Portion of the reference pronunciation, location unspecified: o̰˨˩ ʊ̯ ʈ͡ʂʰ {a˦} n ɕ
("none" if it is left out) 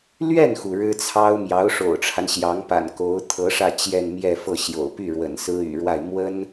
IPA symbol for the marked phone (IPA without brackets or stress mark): a˦